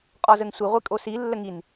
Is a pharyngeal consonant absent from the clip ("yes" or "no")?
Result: yes